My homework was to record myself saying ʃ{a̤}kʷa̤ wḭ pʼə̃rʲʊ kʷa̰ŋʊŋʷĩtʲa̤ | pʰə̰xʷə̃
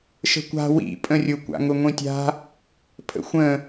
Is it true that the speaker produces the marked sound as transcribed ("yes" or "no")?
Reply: no